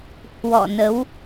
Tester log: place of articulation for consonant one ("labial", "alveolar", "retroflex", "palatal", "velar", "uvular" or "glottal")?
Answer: glottal